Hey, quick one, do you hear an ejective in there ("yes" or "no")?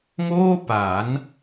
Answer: no